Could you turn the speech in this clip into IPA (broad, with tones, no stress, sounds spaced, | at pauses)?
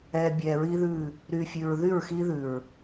ɛ˨ bʲ ɛ˨ ɹ i˦ ð ʉ˦˨ | ɾ y˨ fʲ ʉ˨ ɹ ð y˦˨ ɹ x i˦ ð ʉ˨ ɹ